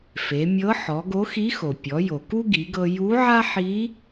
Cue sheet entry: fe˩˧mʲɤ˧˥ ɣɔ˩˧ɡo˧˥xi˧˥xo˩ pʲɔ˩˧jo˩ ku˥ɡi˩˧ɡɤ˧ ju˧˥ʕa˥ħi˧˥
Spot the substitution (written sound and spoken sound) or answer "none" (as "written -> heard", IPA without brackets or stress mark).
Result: ɣ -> ħ